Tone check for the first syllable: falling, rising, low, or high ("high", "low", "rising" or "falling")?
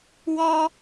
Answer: high